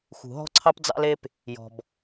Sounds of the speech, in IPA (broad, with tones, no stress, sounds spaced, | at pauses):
x ṳ˩ ɦ ɔ̤˥ ǀʰ ɑ˥ p d͡z ɑ̰˥ l e˥ p | j ɔ̤˩ b